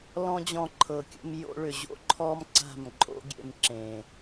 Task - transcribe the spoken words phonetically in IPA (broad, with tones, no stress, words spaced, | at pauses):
lɔ̃˦d͡ʑɔ̃˧ ǃʰɤ˨kʲə̰˧mjo̰˧ɭʏ˨ ʑo̰˦ǃʰɔ˦m ǀa̤˦˨mǃʼo̰˦ ɡʲḛ˧mǁẽ˨